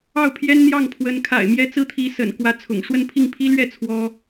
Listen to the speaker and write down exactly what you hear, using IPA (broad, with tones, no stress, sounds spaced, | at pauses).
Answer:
ɑ˥˩ ʊ̯ pʰ j ɛ˥ n n̪ j ɑ˥˩ ŋ pʰ w ə˧˥ n kʰ a̰˨˩ ɪ̯ m j ɛ˥ t͡s ɹ̩˥ t̪ʰ i˧˥ s ə̰˨˩ n k w ä˥ t͡sʰ ʊ̰˨˩ ŋ ʂ w ə˥˧ n pʰ i˥˩ ŋ pʰ i˥ l ɥ ɛ˥˩ t͡sʰ w ɔ˥